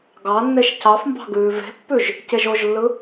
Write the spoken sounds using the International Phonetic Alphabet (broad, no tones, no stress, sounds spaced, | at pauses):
ɡ ɑ nː e ʃ c ɑ f m b ɑ̤ ɡ ʉː v e̤ pː ʉ ʒ | c e ʒ o ʒ lː ɯ